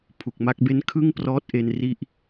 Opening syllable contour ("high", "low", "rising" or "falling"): low